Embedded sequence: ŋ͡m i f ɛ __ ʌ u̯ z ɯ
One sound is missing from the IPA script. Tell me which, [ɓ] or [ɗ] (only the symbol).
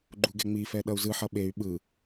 ɗ